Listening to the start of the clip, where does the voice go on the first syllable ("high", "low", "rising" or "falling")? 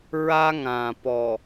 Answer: high